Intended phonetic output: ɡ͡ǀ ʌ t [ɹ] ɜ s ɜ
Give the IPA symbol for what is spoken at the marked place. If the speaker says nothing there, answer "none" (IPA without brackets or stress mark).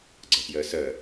j